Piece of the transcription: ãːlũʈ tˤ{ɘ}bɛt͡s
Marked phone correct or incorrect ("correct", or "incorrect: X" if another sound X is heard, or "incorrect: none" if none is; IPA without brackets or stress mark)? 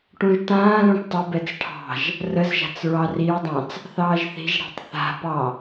correct